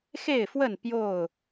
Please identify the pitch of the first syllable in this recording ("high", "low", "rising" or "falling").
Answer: falling